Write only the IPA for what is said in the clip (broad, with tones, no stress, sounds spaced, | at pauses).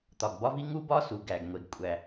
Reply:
t̪ ɒ˩ ɡ b ɒ˥ v i˥ ŋ u˥ b ɒ˥ s u˩ ɡ æ˩ ɡ ŋʷ e˩ ɡ kʷʼ æ˩